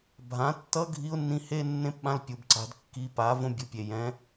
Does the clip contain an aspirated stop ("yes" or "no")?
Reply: no